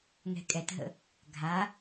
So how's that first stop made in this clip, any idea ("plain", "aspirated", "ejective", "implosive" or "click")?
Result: ejective